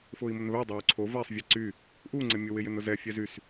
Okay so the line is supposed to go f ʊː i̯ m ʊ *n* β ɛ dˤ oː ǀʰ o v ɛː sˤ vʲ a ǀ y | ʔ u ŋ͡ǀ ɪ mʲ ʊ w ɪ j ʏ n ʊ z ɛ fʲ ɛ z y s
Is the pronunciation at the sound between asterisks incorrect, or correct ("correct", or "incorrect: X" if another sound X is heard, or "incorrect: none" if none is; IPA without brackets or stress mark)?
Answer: correct